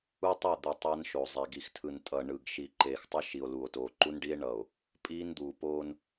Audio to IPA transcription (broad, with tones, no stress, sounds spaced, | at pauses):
u˦ tˤ e˦˨ d̪ ɯ˨ tˤ a˦ n ʃ o˨ zˤ ɛ˨ ɡ i˨ x tʰ ɯ˨ n tʼ ʌ˨ ɳ ɯ˨ ɡ ʃ i˨ ǃ eː˨ x tˤ ʌ˦ ʃ i˨ o̯ l u˨ o̯ t oː˨ ǃ u˦ n ɖ i˦ e̯ ɳ ʌ˨ o̯ | pʼ iː˦ n d̪ uː˨ p oː˦ n